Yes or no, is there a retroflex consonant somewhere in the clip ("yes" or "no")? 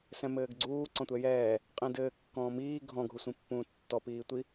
no